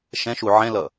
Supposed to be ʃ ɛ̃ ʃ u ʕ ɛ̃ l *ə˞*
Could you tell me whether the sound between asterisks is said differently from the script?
yes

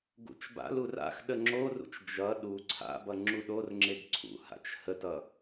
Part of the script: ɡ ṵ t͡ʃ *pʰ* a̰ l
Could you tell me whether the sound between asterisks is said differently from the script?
yes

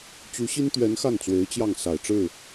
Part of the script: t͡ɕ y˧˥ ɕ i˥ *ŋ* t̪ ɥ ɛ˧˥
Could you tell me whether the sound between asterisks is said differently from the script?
yes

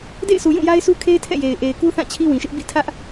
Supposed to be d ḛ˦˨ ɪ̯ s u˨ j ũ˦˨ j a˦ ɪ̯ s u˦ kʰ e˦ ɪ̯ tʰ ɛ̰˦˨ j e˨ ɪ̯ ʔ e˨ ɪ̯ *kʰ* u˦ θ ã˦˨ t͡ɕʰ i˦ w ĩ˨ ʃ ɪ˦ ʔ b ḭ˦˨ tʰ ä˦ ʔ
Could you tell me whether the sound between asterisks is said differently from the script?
yes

